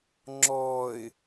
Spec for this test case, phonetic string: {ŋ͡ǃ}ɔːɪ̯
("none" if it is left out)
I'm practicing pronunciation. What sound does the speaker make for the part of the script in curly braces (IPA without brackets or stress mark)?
ŋ͡ǁ